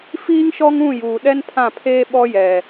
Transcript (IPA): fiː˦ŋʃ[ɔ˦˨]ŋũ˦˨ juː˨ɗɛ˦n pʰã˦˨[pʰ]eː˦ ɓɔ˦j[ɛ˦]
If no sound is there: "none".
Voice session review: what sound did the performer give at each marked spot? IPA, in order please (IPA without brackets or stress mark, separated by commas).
ɔ˦, pʰ, ɛ˨